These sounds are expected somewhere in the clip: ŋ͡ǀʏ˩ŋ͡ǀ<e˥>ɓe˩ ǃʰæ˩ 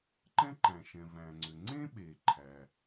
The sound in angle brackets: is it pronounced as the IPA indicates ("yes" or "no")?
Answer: no